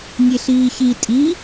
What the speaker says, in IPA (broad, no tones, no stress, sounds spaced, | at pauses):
nʲ e ɬ iː ç i tʼ i